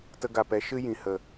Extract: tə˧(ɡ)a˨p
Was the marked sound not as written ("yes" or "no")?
no